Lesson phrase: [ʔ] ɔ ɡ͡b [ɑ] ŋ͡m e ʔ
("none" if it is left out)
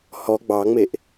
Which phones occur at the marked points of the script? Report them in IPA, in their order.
h, ɑ

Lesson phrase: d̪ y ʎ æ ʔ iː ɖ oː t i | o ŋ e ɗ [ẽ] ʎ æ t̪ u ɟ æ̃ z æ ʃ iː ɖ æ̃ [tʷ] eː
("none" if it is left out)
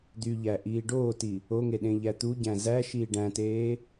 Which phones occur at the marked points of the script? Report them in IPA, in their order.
ẽ, t

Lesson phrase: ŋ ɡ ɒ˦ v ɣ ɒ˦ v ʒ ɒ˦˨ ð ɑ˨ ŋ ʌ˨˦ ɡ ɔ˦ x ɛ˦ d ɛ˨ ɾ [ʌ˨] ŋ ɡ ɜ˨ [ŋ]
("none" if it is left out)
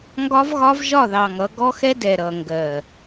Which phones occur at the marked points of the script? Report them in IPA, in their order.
ʌ˨, none

